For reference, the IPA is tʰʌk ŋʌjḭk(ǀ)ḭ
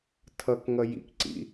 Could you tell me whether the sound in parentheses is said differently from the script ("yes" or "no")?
no